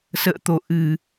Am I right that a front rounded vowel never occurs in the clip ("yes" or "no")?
yes